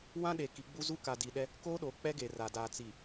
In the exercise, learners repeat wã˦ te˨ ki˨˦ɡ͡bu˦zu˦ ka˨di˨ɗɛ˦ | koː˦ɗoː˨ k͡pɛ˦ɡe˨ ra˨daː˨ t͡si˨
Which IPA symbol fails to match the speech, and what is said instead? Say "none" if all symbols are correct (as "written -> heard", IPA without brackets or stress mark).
t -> ɗ